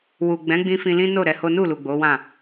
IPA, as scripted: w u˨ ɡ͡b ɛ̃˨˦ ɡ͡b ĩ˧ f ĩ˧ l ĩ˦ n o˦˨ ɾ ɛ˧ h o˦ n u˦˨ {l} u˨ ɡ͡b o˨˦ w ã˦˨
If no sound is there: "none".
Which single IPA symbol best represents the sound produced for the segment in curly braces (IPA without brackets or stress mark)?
l